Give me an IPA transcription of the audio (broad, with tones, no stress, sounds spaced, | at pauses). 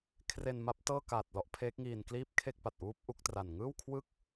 kʰ r e˧ n m a˦˥ p̚ t ɤː˥˩ k aː˨˩ t̚ l ɔ˦˥ ʔ pʰ eː˦˥ k̚ ŋ iː˧ n k l iː˥˩ p̚ kʰ e˥˩ k̚ p a˨˩ t̚ ʔ uː˦˥ p̚ ʔ u˦˥ k̚ t r a˨˩ n ŋ ɯː˥˩ w kʰ w ɯ˥˩ k̚